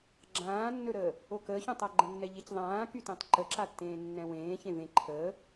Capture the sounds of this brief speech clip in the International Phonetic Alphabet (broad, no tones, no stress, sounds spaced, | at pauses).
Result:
ɡ͡ǁ ãː nː ɵ ɾ əː | o k əː ç ũ tˤ a ɡ͡ǃ ə̃ nː ɛ ʎ e c ðˤ ãː k y t ẽ tˤ ǃ ə ǁ a tː ẽː nː ɛ̃ w ẽː ç ẽ v ẽ ǃʰ əː